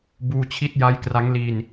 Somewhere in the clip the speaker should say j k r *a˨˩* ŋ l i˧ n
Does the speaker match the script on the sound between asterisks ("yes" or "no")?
no